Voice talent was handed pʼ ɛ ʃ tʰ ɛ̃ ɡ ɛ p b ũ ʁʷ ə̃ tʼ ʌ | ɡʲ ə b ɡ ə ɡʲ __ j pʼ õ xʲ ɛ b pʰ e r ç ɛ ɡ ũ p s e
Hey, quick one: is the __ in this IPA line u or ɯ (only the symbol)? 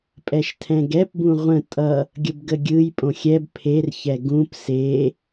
ɯ